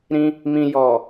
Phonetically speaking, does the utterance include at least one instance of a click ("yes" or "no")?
no